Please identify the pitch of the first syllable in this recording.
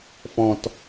low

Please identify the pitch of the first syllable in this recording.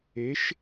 rising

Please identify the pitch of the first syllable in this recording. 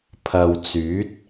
low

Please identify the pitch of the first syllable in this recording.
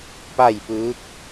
falling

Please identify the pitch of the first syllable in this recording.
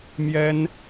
high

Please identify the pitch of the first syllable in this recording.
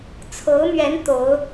rising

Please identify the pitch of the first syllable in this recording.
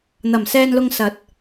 low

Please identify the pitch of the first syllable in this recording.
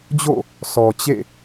falling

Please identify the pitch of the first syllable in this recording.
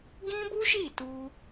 high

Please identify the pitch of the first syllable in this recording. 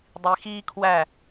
low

